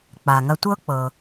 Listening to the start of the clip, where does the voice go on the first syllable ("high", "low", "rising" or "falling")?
low